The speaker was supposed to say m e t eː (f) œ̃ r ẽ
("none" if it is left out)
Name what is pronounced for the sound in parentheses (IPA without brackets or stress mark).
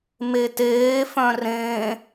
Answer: f